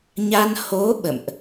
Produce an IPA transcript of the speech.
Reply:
ɲ a˧ n h o˨˦ ɓ ə̰˧˨ m ʔ

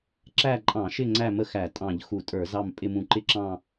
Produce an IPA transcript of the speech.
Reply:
ǁ æ˦˨ ǃʼ ɑ̃˧˩˧ ʃ ɪ˦˨ ŋ͡ǀ æ˦˨ m ə˦˨ x æ˧˩˧ tʼ ɑ̃˧˩˧ ʎ x u˧˩˧ tʼ ə˞˧˩˧ z ɑ˦˨ m pʼ ɪ˦˨ m ũ˧˩˧ ǃ ɪ˦˨ ǁ ɑ̃˦˨

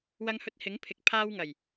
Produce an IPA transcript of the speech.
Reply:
w ɐ˧ ŋ h ɵ˧ t̚ h ɪ˨˥ ŋ pʰ ɪ˨ k̚ pʰ aː˧ w ŋ ɐ˨˩ j

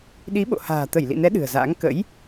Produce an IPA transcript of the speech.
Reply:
ɗ i˨˦ ɓ o̰˧˨ h a̤ː˨˩ t̪ ə˧˩ j l ḭ˧˨ n ɛ˨˦ ɗ ɨ̤˨˩ ə̯ z a̰ː˧˥ ŋ k ə̰˧˥ j

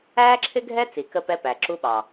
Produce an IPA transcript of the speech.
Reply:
æː˦ ǁʰ ɪ˦ ɡʱ ɛ˦ t͡s i˨ k ə˦ p ɛ˦ p æ˨ ǁ u˦ ɓ ɑ˨

